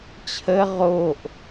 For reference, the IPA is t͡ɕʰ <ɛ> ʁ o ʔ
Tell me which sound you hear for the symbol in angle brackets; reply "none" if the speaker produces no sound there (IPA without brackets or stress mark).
ə